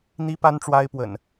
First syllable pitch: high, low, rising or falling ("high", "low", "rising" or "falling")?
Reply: high